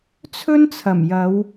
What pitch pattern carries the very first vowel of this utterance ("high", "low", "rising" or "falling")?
high